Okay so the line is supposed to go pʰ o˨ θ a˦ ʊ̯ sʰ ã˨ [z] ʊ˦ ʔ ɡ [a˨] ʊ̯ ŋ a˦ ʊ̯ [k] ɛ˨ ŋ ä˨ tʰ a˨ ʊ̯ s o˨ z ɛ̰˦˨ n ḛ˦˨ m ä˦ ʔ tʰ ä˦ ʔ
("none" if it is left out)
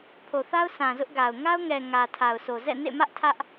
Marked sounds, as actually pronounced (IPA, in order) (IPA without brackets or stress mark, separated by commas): z, a˨, ŋ